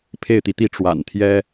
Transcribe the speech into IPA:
pʰ e˥˨ ɪ̯ t̪ i˩ t̪ i˥˨ ʈ͡ʂ w a̰˨˩ n t̪ʰ j ɛ˦

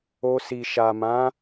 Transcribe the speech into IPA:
o˧ s i˨ ʃ a˨ m ã˨˦

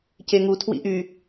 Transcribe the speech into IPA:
c e ŋ u tʰ w ḭ ʔ y

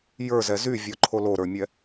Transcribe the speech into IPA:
j ə˞ z ɛ z y vʲ ɔ ǃʰ o l o ɾ ə˞ mʲ ɛ

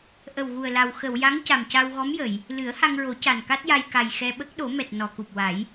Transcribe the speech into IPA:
ʔ ə˨˩ w ɣ u˨˩ ə̯ l a˨˩ w x ə˨˩˨ w j a˧˥ ŋ c a˨˩ m c a˧ w ɣ ɔ˧˥ m j ə˨˩˨ j | l ɨ˨˩˦ ə̯ h a˧ ŋ ɹ o˨˩˦ c a˨˩ n k a˦˥ t̚ j a˧ j k a˨˩ j x ɛ˧ ɓ ə˦˥ k̚ ɗ o˨˩˦ m ɛ˨˩ t̚ n ɔ˨˩˨ k u˨˩ p̚ w a˨˩˦ j

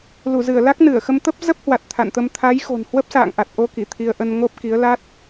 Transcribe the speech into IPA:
l u˧˩ z ɨ˧˩ ə̯ l a˦˥ k̚ n ɨ˧˩ ə̯ x ə˧ m t̪ ə˦˥ p̚ z ə˦˥ p̚ h w a˨˩ t̚ t̪ʰ a̰˧˨ n t̪ ə˧ m t̪ʰ a˨˦ j x o̤˨˩ n h w ə˦˥ p̚ s a̰ː˧˨ ŋ ʔ a˨˩ t̚ ʔ o˧ k i˧˩ t̪ʰ i˧ ə̯ ʔ ə˧ n ŋ o˦˥ p̚ k i˨˦ ə̯ l a˦˥ t̚

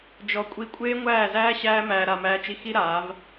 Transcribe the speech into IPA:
d͡ʒ ɔ˧ kʷʼ i˧ kʷʼ eː˦ ŋʷ æː˦˨ z æː˦ ɕ æː˦ m æː˧ ɾ a˧ m æː˧ t͡ʃ i˧ x i˦ ɾ aː˨˦ v

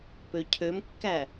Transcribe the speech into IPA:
p ø cʰ ø m kː æ

